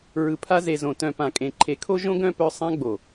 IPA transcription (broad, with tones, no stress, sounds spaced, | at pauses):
ɹ ɯ˨ pʰ a˧ z e˨ z õ˨ t œ̃˨ p ã˨ kʼ ẽ˨ ǃʰ e˨ kʰ o˦ ʒ õ˦ ɡ œ̃˦ p œ˧ sˤ ã˧ ɡ͡b o˨